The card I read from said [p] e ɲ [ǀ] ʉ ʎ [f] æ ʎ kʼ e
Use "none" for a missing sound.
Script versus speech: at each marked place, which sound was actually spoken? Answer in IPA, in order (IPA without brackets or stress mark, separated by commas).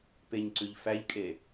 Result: p, ǀ, f